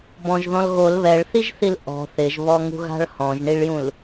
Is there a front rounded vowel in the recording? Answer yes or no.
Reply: no